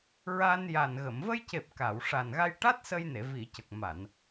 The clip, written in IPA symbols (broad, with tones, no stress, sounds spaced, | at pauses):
ɹ a˧ n j a˨˩ n ɣ ə˨˩˨ m v ə˧ j c e˨˩ p̚ k a˨˩˨ w ʂ a˨˩ n ɣ a˧ j ʈ a˦˥ t̚ s ə˧ j n e˨˩˨ v i˨˩˨ c ə˨˩ k̚ m a˨˩˨ n